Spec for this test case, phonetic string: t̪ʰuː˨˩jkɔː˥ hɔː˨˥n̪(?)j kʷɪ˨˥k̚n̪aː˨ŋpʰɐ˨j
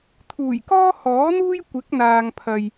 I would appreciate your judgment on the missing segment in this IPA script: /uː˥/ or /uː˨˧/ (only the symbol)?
uː˥